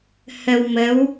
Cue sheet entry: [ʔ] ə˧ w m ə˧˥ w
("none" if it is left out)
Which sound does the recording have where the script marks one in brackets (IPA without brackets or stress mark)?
h